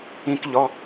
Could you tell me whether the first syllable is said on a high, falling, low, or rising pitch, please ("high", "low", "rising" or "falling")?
high